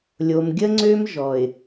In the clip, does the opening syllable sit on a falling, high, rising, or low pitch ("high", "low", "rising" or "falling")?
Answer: low